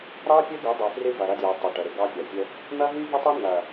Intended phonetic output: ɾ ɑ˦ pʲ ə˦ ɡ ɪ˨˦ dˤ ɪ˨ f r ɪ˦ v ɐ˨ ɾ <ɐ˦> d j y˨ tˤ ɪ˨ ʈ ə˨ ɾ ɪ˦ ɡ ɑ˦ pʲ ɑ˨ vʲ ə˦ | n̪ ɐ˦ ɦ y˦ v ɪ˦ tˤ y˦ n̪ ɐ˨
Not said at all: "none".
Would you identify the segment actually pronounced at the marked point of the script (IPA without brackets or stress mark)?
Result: ɐ˦